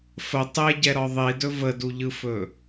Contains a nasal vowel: no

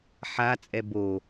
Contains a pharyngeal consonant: yes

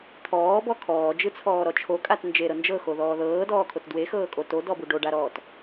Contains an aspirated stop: yes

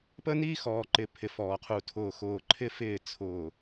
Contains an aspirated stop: yes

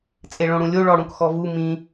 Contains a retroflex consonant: yes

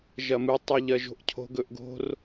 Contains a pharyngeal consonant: no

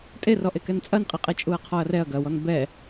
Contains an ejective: yes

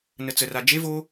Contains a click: no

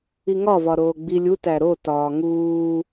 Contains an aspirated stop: no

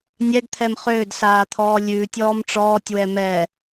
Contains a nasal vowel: no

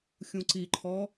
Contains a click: yes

